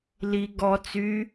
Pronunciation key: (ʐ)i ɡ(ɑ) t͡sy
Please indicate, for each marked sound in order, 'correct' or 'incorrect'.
incorrect, incorrect

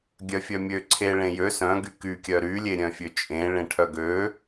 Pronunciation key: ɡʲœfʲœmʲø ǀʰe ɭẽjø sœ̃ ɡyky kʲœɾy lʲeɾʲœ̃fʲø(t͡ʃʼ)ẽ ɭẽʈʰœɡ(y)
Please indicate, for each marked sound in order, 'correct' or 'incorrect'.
correct, incorrect

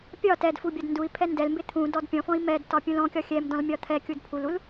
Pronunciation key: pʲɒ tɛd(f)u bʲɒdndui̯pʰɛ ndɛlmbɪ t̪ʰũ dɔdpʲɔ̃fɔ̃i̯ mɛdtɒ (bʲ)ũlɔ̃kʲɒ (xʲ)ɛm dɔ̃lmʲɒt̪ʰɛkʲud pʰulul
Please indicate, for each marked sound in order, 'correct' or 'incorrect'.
correct, incorrect, correct

